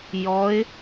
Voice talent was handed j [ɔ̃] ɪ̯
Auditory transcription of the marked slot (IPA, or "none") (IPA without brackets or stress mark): ɔ